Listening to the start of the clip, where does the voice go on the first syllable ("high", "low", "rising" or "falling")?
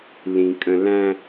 low